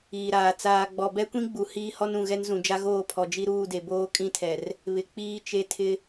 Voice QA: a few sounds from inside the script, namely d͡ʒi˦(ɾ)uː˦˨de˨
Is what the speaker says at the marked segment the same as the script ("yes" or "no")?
yes